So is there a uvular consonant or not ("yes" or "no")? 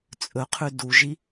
yes